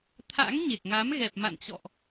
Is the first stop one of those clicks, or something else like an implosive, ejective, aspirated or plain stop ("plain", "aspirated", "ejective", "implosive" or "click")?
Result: aspirated